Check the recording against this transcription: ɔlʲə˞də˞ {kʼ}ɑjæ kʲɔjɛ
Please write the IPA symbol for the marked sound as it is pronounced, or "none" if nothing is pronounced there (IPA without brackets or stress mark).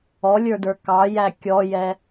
k